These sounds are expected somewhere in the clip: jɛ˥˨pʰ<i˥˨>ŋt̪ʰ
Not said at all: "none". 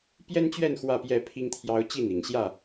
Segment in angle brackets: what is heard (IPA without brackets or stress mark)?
i˦